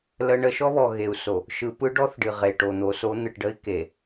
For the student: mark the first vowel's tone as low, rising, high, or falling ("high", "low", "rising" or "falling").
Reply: high